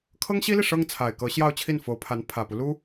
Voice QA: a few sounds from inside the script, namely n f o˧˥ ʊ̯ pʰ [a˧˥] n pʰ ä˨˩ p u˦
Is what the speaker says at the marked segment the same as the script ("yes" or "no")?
yes